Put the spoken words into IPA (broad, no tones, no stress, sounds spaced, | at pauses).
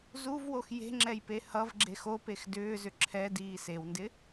z u v w o x j e̤ ŋ͡ǁ ɛ j p e h ʌ v ɡ͡ǁ e x o p e x d ʏː z ʏ ǁʰ ɛ d iː s e w n d ɪ